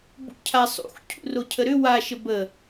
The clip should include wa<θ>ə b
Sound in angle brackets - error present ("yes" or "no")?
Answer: yes